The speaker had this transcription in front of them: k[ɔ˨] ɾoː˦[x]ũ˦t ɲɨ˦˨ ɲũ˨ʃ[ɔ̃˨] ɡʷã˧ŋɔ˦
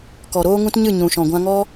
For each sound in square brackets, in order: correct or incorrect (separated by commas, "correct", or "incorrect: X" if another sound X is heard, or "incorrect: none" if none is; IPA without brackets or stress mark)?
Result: correct, incorrect: ŋ, correct